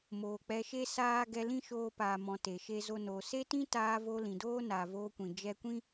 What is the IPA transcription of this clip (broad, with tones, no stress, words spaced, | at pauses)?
moː˨k͡pɛ˧ʃe˦ saː˦ ɡɛ˧lĩ˦ʃoː˧paː˨ mɔ̃˨ te˨ʃe˦zo˦noː˧ se˦tĩ˦taː˧ voː˧lĩ˨doː˦naː˨ voː˧kʷĩ˨ d͡ʒɛ˧kʷĩ˦